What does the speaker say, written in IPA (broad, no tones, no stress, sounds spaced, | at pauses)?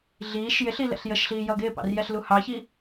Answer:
ɮ iː ʃ j ɪ ɬ i l ɛ̰ ɬ j ə ʃ ɬ iː j ʌ ɡ ɪː p ɑ̰ r j ɛ ɬ l u h ɑ ç i